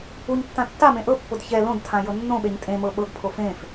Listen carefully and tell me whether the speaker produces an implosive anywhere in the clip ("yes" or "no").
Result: yes